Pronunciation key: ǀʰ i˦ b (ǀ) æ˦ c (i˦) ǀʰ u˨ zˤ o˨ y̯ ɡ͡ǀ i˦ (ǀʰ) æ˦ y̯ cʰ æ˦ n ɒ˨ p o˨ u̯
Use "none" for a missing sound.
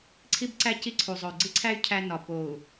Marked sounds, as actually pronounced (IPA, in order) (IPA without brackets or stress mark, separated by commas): ǀ, i˦, ǀʰ